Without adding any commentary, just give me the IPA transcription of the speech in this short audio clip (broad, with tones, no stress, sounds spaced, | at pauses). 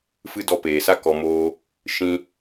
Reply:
f ɨ˦ d ɔ˧ p eː˨ s a˦ k ɔ˧ m oː˦ | ʃ ĩ˧